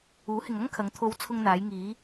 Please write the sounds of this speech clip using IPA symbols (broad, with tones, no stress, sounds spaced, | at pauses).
uː˨˥ h ɪ˨ ŋ ɐ˥ ŋ kʰ ɐ˨˧ ŋ t̪ʰ o˨˧ w t͡sʰ ʊ˧ ŋ n̪ aː˨˧ j ŋ iː˨˧